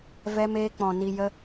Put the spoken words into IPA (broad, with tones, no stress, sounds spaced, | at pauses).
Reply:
v ɛ˦ m eː˦ k͡p ɔ̃˧ n i˧ j ə˦